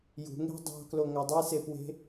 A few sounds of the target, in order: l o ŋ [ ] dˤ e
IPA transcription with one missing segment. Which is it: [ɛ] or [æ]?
æ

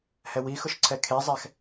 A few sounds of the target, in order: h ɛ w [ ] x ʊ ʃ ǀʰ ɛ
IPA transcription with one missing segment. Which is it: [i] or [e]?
i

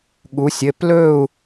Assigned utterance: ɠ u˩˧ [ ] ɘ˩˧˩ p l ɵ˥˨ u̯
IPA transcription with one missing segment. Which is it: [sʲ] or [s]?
sʲ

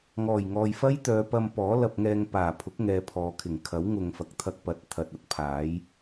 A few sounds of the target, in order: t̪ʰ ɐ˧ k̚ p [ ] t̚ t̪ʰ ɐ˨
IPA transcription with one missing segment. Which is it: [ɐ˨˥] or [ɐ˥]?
ɐ˨˥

